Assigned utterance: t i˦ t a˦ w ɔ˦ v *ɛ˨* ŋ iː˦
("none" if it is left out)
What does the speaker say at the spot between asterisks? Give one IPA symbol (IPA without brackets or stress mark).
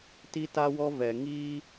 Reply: ɛ˨